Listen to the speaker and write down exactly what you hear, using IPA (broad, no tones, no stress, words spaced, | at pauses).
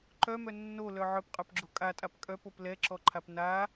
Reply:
ǃœmœ nːolœ ʕœpqʼœpɡ͡ǁo kʼatʼap kʼœpop lɛǁɔǃʰap na